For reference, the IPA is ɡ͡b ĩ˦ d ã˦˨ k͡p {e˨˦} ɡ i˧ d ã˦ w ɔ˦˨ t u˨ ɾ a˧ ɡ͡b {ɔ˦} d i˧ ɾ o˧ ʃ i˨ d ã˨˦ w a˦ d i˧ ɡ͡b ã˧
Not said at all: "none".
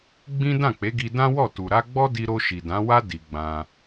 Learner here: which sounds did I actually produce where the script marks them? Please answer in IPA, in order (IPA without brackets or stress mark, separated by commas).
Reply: e˨˦, ɔ˦